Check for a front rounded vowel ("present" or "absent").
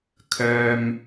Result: present